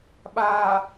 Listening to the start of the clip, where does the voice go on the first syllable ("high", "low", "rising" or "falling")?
low